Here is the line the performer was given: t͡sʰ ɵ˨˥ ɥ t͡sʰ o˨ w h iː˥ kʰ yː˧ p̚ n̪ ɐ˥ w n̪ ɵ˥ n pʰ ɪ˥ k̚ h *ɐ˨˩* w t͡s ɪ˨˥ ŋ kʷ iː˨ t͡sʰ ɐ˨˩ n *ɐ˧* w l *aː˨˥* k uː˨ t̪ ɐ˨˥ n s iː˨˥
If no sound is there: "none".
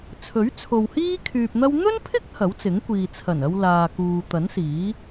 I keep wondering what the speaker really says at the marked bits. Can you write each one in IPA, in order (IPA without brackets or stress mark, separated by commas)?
ɐ˨˥, ɐ˧, aː˨